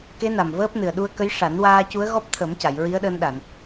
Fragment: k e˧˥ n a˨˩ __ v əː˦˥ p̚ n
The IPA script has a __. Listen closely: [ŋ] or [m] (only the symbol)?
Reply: m